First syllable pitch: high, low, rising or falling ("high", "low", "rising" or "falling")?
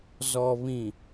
low